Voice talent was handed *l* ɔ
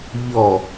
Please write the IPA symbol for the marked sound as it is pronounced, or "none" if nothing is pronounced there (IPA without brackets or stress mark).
ʎ